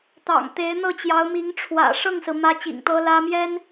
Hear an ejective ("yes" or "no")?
no